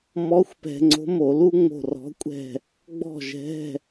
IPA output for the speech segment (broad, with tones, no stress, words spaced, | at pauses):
mɔ˧˥xʷpɛ̤˧ ŋ͡ǀo̤˧˥mo˧˩˧lu˥ ŋ͡mo̤˥˨r ɔ̤˧˥kʷʼɛ̤˥˨ | ɡ͡bɔ̤˥˨ʒɛ̤˧˥˧